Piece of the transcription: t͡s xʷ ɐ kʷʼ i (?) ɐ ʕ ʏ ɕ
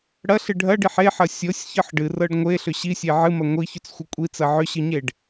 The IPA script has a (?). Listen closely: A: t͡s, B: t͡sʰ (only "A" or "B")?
A